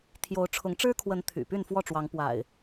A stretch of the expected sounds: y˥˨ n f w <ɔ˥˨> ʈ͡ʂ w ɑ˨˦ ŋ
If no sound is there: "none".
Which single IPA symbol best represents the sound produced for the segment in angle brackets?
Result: ɔ˥˨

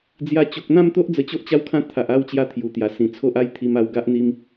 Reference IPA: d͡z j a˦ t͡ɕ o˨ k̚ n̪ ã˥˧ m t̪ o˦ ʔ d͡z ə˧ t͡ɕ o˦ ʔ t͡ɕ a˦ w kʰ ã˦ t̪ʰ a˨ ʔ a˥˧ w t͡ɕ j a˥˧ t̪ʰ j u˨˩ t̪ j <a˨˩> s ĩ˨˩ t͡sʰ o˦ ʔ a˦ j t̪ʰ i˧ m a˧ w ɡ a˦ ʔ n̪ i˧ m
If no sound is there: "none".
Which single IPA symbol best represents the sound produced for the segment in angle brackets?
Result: a˨˩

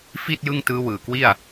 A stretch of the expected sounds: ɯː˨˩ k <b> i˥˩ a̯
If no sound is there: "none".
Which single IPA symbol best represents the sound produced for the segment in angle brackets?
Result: w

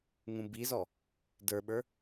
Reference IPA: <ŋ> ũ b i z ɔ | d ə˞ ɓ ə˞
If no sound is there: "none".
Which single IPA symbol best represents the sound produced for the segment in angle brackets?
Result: ŋ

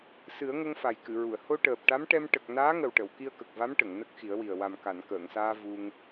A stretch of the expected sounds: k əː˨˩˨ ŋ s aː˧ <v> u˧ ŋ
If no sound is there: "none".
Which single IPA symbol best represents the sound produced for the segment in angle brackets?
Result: v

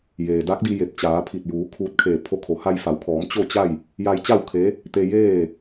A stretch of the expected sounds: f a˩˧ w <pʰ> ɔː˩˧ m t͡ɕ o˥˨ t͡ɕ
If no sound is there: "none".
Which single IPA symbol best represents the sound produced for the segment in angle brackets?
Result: kʰ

